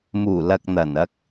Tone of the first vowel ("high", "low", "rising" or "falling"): low